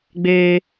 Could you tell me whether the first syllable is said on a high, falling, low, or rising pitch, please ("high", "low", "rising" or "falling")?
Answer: high